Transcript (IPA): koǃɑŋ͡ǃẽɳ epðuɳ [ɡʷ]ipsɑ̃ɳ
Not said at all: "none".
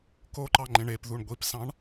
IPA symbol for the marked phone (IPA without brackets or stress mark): ɡʷ